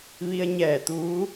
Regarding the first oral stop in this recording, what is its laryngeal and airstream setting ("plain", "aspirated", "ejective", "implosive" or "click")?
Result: plain